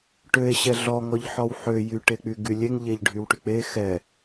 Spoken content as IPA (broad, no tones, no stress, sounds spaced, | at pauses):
ʈ ø e̯ ɕ ɛ ɮ ɔ ŋ ɔ ʎ ħ ɔ w ħ ø j y ʈ e k͡p y ɡ y lʲ e ŋ ʎ e ʎ ɖʱ y w ʈ y k͡p e x ɛ